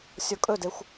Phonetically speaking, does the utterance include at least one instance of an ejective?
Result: yes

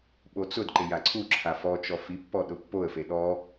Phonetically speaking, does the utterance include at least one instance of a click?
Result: yes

